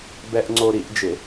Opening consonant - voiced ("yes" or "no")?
yes